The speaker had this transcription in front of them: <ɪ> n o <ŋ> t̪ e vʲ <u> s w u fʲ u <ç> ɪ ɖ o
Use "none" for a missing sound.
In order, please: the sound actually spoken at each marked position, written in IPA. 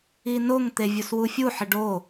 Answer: i, ŋ, u, ħ

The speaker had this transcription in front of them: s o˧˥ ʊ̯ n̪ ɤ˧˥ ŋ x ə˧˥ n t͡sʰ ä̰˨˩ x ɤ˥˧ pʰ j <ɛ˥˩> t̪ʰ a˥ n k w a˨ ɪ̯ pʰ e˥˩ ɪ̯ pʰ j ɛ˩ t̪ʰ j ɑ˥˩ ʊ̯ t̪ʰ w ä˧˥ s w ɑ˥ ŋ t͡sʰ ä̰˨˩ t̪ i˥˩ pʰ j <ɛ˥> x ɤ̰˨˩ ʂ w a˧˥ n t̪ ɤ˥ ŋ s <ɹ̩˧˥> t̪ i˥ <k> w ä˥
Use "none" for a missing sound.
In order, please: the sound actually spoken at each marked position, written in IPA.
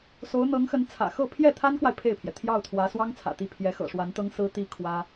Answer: ɛ˥˩, ɛ˧˥, ɹ̩˥, kʰ

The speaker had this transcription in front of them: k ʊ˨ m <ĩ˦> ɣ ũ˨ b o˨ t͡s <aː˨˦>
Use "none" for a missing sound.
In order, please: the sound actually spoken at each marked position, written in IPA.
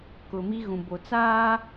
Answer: i˦, aː˦

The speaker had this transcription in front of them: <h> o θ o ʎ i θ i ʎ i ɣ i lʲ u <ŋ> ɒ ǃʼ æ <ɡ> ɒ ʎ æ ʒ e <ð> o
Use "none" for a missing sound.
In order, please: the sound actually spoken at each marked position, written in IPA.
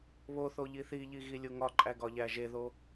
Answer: β, ŋ, ɡ, ð

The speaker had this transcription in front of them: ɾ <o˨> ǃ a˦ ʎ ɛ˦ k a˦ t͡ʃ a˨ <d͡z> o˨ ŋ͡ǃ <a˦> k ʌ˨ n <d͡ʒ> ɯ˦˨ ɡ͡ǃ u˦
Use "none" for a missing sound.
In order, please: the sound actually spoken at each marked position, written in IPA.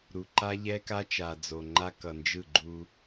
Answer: u˨, d͡z, a˦, d͡ʒ

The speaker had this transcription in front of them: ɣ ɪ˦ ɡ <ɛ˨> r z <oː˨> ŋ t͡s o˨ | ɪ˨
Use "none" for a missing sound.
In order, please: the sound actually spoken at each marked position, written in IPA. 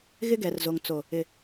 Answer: ɛ˨, o˨

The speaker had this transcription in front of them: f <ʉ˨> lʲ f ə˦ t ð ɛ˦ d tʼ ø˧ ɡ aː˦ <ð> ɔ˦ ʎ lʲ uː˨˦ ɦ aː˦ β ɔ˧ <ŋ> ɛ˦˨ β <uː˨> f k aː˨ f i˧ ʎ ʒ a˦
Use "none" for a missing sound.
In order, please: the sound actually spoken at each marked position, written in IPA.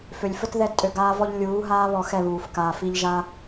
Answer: ø˨, v, x, uː˨

